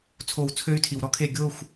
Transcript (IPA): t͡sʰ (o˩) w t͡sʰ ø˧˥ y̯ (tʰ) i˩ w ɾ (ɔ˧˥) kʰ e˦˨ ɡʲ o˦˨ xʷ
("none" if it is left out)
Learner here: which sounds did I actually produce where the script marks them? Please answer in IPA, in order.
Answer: o˨˩˦, tʰ, ɔ˧˥

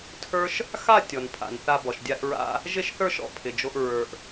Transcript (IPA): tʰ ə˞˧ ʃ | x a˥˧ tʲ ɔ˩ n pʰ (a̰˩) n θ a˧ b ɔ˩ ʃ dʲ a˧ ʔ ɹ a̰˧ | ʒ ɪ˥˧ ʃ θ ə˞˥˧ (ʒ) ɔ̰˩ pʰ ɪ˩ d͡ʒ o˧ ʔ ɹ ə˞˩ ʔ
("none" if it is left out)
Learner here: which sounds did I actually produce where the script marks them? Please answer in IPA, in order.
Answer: a̰˩, ʃ

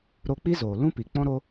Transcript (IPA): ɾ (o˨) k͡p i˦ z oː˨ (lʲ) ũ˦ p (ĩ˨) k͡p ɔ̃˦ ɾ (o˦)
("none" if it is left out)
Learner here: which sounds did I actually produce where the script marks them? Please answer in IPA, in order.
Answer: o˧, l, i˨, o˦

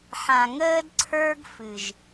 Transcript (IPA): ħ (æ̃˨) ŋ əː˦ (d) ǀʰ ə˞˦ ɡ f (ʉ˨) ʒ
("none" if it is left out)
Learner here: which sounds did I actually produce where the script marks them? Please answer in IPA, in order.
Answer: ã˨, d, ɨ˨

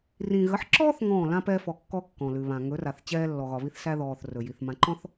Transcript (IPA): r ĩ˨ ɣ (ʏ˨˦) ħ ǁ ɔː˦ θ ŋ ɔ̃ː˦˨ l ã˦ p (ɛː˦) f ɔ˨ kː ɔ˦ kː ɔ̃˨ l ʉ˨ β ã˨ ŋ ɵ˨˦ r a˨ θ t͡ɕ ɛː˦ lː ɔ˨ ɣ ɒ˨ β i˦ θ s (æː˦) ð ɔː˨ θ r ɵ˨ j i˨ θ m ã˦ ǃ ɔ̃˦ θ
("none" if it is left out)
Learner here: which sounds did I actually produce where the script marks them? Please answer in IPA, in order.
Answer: ə˨˦, ɛː˦, æ˦

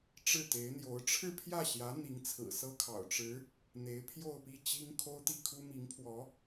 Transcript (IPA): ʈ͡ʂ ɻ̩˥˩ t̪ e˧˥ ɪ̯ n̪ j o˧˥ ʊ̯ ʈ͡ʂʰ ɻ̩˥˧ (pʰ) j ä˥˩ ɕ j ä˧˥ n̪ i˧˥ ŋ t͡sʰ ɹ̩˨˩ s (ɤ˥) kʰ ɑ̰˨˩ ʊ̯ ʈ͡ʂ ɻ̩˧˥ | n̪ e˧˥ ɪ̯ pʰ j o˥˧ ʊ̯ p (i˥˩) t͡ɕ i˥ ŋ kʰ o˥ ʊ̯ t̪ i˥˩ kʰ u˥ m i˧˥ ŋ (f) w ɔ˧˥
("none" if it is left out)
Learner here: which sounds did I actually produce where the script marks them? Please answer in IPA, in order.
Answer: pʰ, ɤ˥, i˥˩, pʰ

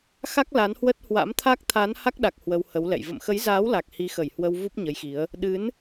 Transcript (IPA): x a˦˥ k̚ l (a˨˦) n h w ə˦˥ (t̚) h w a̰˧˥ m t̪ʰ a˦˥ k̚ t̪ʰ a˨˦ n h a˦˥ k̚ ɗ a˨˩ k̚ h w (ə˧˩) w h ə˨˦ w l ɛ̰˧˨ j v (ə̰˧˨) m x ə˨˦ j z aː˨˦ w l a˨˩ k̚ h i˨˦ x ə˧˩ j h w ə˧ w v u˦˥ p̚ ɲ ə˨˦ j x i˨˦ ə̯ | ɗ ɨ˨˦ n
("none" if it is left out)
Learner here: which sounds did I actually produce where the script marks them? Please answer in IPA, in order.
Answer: a˨˦, t̚, ə˧, ə̰˧˨

